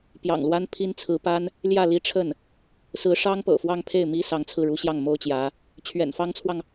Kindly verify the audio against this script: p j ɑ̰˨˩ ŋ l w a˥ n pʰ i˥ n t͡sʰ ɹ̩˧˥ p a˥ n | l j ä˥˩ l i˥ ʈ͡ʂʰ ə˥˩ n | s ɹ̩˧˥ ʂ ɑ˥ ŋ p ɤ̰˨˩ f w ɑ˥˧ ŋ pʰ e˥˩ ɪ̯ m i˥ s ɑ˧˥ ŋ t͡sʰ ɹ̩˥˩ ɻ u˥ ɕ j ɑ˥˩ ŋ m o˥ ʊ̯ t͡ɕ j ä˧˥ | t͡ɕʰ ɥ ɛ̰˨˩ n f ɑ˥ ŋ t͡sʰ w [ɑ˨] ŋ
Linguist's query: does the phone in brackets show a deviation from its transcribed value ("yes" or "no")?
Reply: no